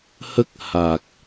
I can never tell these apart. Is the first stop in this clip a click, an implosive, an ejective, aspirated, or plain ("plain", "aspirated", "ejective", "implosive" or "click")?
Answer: plain